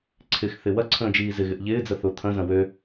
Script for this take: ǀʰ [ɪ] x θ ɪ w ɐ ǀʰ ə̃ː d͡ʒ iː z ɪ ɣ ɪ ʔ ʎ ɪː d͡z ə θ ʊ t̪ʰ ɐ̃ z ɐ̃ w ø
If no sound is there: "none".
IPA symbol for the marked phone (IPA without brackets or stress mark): ɪ